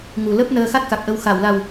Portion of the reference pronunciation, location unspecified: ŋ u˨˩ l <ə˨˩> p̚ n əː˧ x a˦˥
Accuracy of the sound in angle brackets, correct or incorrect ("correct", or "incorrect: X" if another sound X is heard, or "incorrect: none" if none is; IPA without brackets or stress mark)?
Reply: incorrect: ə˦˥